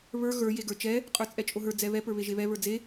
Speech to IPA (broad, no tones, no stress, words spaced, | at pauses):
βə˞ ɣə˞ jeɡə˞t͡ʃɛ | qʼə˞t͡sʼɛt͡ʃʼoɦə˞ d͡zɛβɛ pə˞βeʒeβɛ βə˞d͡ze